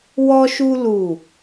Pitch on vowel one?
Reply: high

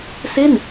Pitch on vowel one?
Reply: falling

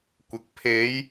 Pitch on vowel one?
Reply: low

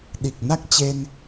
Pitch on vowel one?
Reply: low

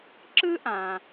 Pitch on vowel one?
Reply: high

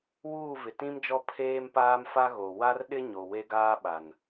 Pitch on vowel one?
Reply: falling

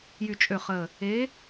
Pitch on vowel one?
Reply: low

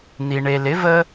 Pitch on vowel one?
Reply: low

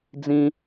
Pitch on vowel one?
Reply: high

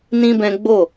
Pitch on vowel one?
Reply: high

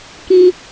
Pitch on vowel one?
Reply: high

